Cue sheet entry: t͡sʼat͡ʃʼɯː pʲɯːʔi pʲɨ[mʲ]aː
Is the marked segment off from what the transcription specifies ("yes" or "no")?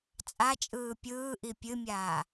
no